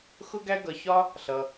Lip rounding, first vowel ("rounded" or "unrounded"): rounded